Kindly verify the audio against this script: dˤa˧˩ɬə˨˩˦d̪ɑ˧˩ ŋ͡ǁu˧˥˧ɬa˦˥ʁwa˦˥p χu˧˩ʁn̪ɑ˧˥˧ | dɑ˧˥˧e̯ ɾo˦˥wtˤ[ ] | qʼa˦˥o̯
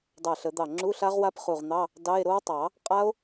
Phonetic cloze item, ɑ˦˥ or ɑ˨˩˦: ɑ˨˩˦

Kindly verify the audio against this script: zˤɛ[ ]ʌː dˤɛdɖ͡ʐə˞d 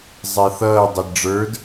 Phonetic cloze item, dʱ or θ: θ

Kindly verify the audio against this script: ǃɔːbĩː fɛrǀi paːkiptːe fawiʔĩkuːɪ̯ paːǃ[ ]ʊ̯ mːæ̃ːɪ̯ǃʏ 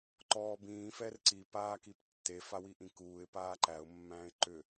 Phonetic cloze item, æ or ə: æ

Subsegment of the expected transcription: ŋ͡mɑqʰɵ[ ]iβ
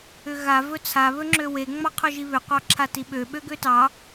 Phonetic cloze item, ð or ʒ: ʒ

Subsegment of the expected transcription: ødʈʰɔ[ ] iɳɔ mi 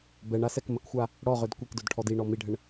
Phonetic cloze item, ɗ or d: d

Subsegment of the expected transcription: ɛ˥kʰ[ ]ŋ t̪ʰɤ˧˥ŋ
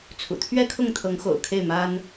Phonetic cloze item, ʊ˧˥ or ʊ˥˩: ʊ˥˩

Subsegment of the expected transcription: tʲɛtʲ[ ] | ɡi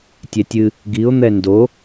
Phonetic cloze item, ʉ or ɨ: ɨ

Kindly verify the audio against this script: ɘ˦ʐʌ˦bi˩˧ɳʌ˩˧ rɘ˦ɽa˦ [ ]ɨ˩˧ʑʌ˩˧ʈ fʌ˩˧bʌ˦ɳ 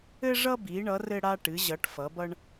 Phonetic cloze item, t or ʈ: ʈ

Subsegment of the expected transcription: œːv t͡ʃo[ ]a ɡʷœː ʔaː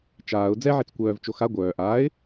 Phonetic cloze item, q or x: x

